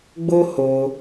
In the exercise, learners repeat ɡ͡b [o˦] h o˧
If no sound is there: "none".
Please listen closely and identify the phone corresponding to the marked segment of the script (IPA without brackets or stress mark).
o˦